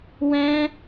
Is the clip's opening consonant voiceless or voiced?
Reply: voiced